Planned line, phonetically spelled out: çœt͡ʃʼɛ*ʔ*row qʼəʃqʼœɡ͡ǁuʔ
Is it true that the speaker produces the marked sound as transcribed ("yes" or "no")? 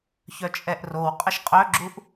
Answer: yes